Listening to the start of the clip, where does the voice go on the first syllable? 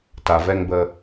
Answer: low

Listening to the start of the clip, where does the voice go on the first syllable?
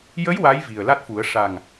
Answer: rising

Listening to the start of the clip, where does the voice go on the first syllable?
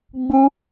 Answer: high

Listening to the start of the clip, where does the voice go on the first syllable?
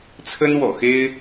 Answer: high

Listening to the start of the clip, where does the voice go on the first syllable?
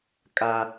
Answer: high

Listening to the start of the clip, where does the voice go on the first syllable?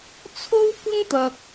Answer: high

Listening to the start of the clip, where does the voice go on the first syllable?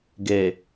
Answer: low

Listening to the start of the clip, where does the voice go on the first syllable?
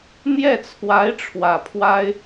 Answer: falling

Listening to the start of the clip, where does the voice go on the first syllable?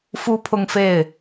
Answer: high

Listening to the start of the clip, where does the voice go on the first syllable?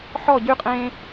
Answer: falling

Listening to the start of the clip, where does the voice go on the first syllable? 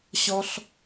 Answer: high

